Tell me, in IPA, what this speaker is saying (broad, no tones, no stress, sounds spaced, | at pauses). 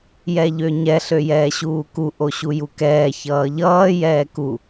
j ɛ ʎ ø ɲ ɛ ɬ ø j ɛː ɕ uː k u ʔ o ɕ u j u k ɛː ç ʌː ʎ ʌː j ɛː k u